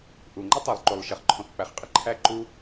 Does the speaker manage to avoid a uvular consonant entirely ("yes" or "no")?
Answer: no